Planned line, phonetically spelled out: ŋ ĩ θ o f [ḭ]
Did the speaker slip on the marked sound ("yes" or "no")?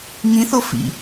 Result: no